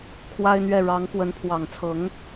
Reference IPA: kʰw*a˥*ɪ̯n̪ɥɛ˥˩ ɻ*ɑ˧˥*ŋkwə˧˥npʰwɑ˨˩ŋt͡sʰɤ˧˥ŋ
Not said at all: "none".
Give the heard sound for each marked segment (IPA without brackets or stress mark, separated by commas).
a˥, ɑ˧˥